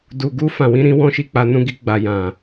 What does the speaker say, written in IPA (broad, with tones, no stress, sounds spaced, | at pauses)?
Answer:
d u˨ ɡ u˧ f ã˨ w ĩ˨˦ ɾ ĩ˧ w ɔ̃˦ ʃ i˧ k͡p a˧ n ũ˧ ɡ i˧ ɡ͡b a˨ j ã˨